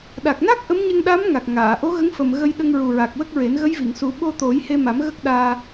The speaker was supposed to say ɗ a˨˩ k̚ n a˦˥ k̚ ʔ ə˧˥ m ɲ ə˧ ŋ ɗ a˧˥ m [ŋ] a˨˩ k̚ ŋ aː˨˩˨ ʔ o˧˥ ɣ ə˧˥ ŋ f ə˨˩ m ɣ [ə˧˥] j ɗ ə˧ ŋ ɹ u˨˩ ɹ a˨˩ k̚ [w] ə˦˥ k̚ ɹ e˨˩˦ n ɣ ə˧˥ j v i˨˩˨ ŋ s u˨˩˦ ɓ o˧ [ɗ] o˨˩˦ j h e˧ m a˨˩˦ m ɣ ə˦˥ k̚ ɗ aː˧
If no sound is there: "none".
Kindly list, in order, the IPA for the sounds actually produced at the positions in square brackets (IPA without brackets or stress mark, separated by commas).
ŋ, ə˧, w, t̪